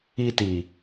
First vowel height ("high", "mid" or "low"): high